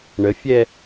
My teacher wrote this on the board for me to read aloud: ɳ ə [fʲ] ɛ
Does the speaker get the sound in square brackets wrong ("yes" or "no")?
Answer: no